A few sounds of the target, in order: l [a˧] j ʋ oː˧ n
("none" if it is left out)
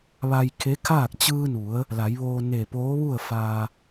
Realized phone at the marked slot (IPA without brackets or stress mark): a˩˧